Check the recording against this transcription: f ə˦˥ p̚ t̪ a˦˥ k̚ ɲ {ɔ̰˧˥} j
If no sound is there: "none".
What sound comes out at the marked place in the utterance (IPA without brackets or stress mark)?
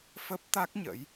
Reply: ə̰˧˥